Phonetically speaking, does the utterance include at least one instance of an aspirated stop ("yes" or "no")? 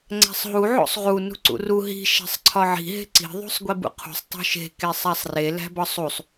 yes